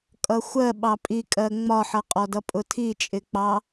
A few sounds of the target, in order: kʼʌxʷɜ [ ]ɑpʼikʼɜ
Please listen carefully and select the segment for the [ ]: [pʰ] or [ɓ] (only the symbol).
ɓ